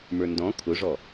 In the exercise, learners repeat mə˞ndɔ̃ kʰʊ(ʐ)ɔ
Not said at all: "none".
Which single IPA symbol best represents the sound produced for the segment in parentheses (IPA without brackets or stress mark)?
ʐ